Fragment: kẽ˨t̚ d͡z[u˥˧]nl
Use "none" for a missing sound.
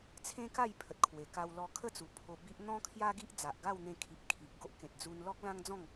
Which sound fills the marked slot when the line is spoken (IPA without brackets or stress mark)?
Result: u˧